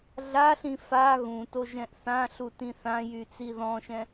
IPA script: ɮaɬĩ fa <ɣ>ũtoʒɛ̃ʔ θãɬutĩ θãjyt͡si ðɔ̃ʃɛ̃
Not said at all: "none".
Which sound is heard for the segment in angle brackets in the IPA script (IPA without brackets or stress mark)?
ɣ